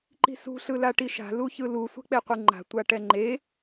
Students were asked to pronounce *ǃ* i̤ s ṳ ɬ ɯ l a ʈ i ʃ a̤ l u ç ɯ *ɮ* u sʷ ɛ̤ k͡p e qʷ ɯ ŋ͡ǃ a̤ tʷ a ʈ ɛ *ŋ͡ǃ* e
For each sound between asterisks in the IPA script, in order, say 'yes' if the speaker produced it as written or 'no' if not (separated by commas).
yes, no, yes